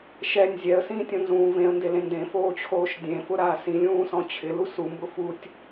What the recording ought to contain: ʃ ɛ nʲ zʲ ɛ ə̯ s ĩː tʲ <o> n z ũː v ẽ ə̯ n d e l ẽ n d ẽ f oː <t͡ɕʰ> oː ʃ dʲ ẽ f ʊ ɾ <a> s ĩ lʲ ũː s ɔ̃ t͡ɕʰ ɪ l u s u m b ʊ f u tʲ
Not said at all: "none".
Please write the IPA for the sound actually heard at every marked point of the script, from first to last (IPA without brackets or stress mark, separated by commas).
õ, t͡ɕʰ, aː